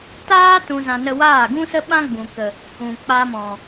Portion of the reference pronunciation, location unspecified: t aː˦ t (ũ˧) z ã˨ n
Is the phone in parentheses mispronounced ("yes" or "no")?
yes